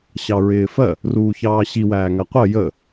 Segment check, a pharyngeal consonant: absent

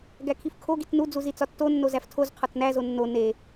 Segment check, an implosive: absent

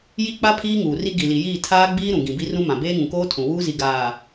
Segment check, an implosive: absent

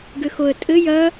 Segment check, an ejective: present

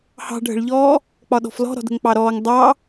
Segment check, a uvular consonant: absent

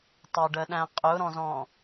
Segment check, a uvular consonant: present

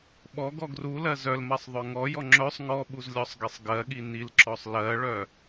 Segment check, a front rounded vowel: present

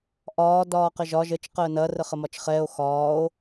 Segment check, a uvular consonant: present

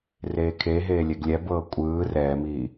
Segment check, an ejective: present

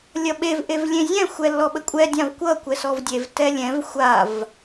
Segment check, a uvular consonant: absent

